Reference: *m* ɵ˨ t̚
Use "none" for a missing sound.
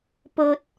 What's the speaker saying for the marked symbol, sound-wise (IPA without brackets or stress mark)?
p